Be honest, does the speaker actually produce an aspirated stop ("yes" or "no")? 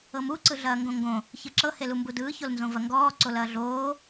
no